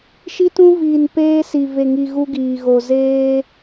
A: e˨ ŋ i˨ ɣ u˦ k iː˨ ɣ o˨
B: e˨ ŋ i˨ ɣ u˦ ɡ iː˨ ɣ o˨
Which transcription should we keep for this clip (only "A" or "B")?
B